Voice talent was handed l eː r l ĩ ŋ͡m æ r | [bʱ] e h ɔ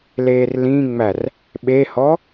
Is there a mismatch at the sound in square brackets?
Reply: yes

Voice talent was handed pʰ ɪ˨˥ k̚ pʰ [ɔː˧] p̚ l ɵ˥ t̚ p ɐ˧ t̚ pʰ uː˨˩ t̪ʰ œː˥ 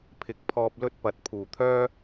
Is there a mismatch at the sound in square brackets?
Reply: no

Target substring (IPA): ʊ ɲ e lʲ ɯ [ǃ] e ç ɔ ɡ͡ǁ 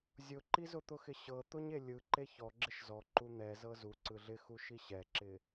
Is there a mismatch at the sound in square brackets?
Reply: no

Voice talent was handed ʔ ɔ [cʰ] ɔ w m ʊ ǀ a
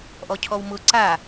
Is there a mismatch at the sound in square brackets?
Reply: no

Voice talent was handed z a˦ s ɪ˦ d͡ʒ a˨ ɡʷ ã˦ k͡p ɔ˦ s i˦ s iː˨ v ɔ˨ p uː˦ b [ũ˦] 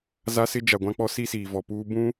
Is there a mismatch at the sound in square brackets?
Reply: no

